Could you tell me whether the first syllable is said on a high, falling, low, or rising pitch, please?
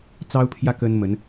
high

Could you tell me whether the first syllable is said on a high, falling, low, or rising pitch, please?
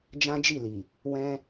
high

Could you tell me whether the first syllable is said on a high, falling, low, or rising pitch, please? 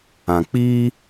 low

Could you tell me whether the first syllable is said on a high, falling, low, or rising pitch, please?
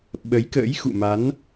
rising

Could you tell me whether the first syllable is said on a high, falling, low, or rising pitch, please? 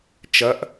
rising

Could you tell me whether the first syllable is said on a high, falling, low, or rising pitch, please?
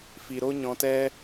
low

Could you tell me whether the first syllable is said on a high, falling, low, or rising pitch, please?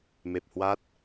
low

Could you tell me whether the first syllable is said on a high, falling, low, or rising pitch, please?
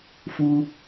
high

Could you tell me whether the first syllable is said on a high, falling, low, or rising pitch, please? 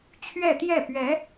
falling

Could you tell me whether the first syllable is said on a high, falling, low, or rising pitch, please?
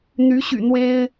rising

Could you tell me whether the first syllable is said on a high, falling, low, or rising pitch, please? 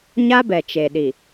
high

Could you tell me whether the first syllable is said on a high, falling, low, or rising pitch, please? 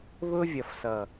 high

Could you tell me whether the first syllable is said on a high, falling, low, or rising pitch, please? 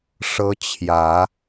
high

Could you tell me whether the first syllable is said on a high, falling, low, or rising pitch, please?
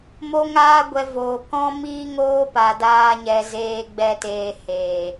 high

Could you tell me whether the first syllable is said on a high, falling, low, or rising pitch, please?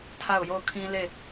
falling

